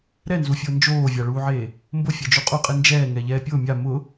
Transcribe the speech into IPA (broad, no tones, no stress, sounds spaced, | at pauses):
ɾ ɛ n z u fʲ ʊː n d͡ʒ oː vʲ a ɭ uː ʕ eː | m b ʊ fʲ ɛ d͡ʒ u qʼ u qʼ i n d͡ʒ ɛː ŋ ɛ ʎ ɛː pʲ ʊː mʲ a m ʊ